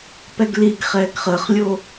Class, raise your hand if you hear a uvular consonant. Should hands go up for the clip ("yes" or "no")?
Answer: yes